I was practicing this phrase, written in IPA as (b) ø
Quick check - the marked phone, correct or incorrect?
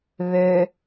incorrect